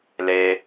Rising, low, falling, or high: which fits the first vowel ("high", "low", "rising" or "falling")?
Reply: low